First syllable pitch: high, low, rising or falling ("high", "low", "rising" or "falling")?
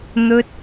high